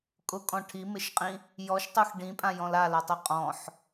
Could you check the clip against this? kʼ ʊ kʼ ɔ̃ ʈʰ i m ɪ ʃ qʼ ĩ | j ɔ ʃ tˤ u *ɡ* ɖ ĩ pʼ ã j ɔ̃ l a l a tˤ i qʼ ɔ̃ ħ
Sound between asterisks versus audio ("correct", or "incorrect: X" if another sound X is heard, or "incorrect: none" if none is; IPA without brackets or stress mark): incorrect: x